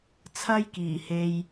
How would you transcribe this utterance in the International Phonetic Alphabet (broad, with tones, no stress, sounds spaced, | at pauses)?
t͡sʰ ɐ˥ j k iː˨˩ h e˧ j